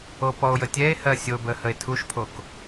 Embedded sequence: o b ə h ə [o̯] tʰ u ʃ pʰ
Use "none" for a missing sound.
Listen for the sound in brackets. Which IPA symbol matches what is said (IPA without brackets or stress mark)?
e̯